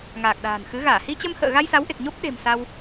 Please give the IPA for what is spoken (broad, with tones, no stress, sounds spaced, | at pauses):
ŋ aː˨˩ k̚ ɗ a̤ː˨˩ n x ɨ˨˦ ɣ aː˧˩ h i˧ t͡ɕ ə˧ m h ə̰ː˧˨ ɣ a˧ j s a˨˦ w ʔ e˨˩ k̚ ɲ o˦˥ p̚ ɗ e̤˨˩ m s a˧ w